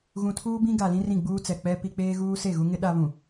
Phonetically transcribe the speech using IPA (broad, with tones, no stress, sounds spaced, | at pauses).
ɣ ũ˨ tʰ uː˦ b ĩ˦ ɡ a˨ l ĩ˦ r ĩ˦˨ ɡ͡b uː˦ t͡s ɛ˨ k͡p ɛ˦ p i˦ k͡p eː˦ ɣ uː˦ s e˦˨ ɣ u˦ ŋ ɪ˦ ɗ a˦ β ũ˨